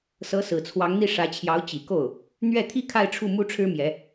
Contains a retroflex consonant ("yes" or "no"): yes